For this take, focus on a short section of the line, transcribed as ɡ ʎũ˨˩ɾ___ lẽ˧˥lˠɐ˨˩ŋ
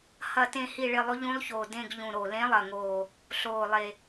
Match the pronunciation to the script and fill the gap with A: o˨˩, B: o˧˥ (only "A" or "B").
A